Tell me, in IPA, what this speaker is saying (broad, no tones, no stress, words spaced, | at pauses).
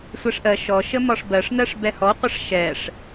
sʷɛʂʔɜ ʃɔ ʃəmɒʂbɜʂnɜʂ bɛhɔqʷʌʂ ʃɛʂ